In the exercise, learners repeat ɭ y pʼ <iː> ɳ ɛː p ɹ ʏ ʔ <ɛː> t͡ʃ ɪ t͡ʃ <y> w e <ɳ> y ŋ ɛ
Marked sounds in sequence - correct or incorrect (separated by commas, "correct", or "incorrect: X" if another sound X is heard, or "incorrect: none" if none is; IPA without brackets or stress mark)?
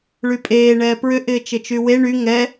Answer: incorrect: eː, incorrect: ɪː, correct, correct